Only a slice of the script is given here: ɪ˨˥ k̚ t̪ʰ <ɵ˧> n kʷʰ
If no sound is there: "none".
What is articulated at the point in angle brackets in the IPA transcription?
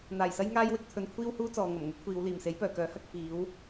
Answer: ɵ˧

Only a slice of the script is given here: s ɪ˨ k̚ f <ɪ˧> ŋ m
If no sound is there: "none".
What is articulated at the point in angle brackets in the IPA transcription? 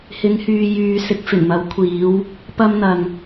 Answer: ɪ˨˩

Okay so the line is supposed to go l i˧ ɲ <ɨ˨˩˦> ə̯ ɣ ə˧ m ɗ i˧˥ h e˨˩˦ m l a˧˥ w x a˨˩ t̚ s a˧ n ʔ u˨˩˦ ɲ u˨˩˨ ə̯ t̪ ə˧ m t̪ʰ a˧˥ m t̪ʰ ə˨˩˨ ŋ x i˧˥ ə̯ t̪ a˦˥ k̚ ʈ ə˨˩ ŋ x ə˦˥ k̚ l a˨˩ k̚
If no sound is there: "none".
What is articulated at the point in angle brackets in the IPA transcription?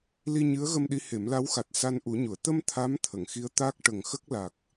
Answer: ɨ˧˥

